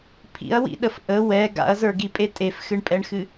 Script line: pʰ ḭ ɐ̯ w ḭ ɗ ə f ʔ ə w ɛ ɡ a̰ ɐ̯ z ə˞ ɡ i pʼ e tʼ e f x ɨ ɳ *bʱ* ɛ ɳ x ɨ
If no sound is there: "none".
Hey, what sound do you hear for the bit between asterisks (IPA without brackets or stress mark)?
pʼ